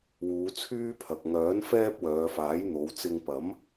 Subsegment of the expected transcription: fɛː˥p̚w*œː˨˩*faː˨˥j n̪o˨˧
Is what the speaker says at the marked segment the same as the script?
no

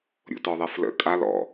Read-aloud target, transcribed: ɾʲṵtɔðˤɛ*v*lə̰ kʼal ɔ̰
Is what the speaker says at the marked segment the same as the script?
no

